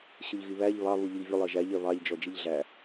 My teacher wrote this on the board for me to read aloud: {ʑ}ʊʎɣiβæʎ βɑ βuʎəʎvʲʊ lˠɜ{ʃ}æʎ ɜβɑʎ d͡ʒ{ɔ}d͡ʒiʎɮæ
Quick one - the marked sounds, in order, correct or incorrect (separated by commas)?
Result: incorrect, incorrect, correct